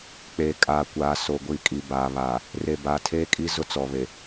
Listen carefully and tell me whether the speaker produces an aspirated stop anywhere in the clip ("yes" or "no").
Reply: yes